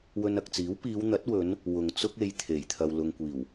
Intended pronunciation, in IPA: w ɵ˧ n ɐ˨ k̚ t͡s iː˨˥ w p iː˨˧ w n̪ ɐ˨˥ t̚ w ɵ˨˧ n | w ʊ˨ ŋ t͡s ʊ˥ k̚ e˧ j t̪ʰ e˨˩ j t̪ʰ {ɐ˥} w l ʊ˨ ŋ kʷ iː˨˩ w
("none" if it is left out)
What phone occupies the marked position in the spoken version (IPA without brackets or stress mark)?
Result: ɐ˨